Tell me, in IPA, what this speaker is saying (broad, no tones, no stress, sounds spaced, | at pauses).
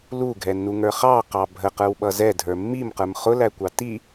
l u ɡʱ ɛ nː u ŋ ə˞ χ ɑ q ɑ bʱ ə q ə˞ w ɓ ʌ z ɛ dʱ ə˞ mː i m q ə˞ m χ ʊ l æ kʷ ɑ t i